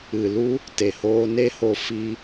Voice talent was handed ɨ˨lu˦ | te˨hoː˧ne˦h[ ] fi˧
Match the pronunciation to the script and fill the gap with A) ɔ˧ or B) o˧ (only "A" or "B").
B